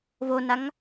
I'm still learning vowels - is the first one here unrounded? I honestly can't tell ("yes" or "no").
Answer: no